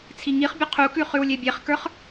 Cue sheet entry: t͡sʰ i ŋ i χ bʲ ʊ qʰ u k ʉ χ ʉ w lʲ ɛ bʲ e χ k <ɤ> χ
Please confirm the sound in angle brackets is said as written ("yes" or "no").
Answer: no